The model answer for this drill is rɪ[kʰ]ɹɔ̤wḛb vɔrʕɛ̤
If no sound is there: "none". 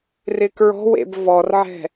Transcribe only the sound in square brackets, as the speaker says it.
k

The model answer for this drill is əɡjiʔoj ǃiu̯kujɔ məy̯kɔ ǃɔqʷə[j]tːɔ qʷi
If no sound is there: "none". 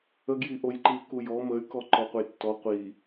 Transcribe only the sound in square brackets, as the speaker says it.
j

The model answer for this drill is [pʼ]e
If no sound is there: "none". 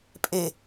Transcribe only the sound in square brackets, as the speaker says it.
pʼ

